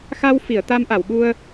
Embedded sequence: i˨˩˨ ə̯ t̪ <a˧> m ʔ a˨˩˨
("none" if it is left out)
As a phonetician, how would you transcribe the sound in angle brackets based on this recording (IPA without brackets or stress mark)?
a˧